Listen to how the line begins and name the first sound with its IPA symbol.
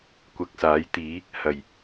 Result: kʷ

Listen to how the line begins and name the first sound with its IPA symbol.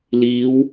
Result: l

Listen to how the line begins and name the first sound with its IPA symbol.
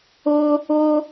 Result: ʊ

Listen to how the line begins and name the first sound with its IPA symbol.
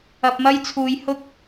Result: ɐ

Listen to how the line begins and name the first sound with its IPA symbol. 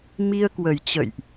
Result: m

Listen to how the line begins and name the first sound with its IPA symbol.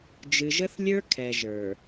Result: d͡ʒ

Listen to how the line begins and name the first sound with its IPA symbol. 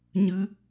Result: ɲ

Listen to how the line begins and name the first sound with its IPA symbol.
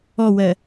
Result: ɔ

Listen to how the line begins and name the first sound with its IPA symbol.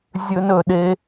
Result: zʲ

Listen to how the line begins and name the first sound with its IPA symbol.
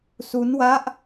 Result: s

